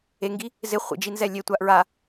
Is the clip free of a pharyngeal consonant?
yes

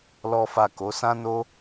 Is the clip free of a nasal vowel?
no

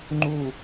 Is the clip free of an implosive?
yes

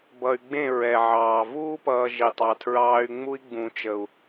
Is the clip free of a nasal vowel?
no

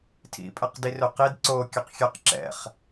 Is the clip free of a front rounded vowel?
no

